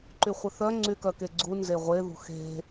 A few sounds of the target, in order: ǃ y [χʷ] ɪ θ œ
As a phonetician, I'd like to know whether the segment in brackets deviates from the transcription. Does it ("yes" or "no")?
no